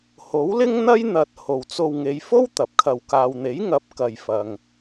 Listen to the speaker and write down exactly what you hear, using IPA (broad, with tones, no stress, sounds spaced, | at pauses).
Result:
h o˨˥ w l ɪ˥ ŋ n̪ ɐ˥ j n̪ ɐ˨ t̚ h o˨ w t͡s o˧ w ŋ e˨˧ j f o˥ w t̪ ɐ˨˥ p̚ kʰ ɐ˧ w k aː˨ w n̪ e˨˥ j ŋ ɐ˨˥ p̚ k ɐ˨ j f ɐ˨ ŋ